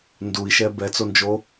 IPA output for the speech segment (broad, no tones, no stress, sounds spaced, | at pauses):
n d u i̯ ʃ ɛ b ɛ t͡s o n d͡ʒ o